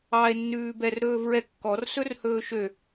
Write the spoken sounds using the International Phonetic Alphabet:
ɑe̯nːʉː bɛrɾɵːvɹɛ kːɔrsɵr hɵːʃø

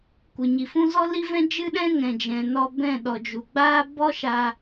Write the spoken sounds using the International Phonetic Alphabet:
kʷɨ˨ɲi˨fũ˦ zɔ˦li˦vɛ̃˦ d͡ʒɨ˦ɗɛ̃˦ ŋɛ̃˨d͡ʒɛ̃˨ nɔ˧ bɛ̃˦˨ɗɔ˨d͡ʒu˨ ɡ͡baː˦ bɔ˦ʃa˧

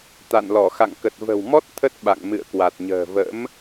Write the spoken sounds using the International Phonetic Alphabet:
t̪a̰˧˨nlɔ˧˩ xa̰˧˨ŋkə˨˩t̚və̤˨˩wmɔ˦˥t̚ t̪ʰə˦˥t̚ɓa̰˧˨ŋ mɨ̰˧˨ə̯kwa˨˩t̚ɲə̤ː˨˩ və̰˧˥m

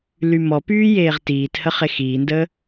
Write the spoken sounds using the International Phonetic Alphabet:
lymɔpyː jeːʁtiːthə χexiːndəː

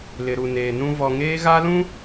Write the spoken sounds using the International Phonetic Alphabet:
lɪ˨ɾu˨neː˨nũ˦ vɔ˨ŋeː˦ ɣa˦lũ˦

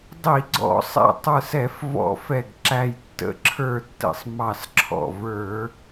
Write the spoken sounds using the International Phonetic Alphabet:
dˤi˧˩˧ɡ͡ǀɔ̰˧˩˧sˤɛ̰˧˩ tˤə˞˧˩sɛ˧˩˧f vɔ̰˧˩˧fɛ˧˩ɡǁæ˧˩j tːə̰˧˩ǁʰə˞˧˩tːə̰˧˩sˤ mɑ˧˩sǁʰɔ̰˧˩ və˞˧˩˧

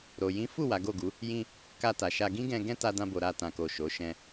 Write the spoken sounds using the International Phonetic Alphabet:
ɾo˨ jĩ˨˦fu˦˨ wa˨˦ɡo˦˨ɡu˨˦ | jĩ˧ | ka˧ta˨ʃa˧ ɡĩ˦ɡɛ̃˧ ɡɛ̃˦ta˧dã˧bo˨ ɾa˧ tã˨ko˨ ʃo˨˦ ʃɛ̃˧

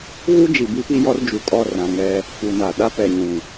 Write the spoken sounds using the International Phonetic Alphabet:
ɣu˦d͡ʒi˨ bi˦pi˦jɔ˦r d͡ʒu˨kʼɔ˦˨rã˨ ŋɛ˦ | fu˨na˨ ɗa˦pɛ˨ɲũ˨

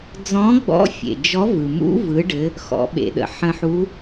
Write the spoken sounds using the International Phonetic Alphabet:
d͡zɔ̃˧˥ɡ͡bɔ̰˧˥fʲḛ˩ d͡ʒɔ˧˥vɯ˩ mṵ˧˥vɯ˩˧ɖɘ˩˧ | xɔ̰˩˧ɓḛ˩ɗə̰˩ ħə̃˧ħu˧˥

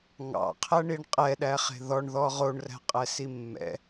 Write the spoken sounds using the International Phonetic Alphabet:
ŋɑ̰qʰæɳiɳ qʼɛɗæχe̤ ðɔɳðɔ ʁoɳræ̤qʼɛsi mːɛ̰

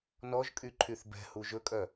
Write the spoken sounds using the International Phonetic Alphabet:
nɔʒkʼy ǃʰyθbɛ̤hu ʒɵkʼœ

